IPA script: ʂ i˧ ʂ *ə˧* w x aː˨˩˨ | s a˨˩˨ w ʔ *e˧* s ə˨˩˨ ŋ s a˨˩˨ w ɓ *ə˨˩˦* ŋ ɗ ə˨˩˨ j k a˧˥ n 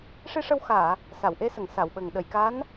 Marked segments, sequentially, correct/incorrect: correct, correct, incorrect: ə˨˩

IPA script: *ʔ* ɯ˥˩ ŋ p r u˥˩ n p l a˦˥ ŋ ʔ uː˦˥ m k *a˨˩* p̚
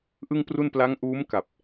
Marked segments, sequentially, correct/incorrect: correct, correct

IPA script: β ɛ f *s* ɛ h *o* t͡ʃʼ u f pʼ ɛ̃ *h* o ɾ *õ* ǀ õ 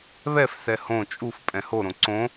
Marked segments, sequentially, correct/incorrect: correct, incorrect: õ, correct, correct

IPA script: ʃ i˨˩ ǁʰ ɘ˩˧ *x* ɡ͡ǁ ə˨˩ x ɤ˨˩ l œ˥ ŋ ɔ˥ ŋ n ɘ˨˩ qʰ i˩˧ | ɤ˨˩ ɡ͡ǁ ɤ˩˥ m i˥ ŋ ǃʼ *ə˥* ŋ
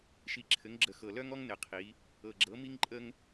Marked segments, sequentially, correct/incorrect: incorrect: ŋ, correct

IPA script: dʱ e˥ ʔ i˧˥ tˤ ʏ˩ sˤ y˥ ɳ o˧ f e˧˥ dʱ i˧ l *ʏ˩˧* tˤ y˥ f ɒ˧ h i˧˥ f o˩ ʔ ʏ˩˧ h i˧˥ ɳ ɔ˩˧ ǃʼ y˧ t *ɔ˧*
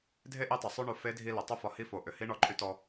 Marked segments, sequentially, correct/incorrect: correct, correct

